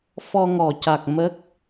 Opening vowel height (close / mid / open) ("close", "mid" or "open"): mid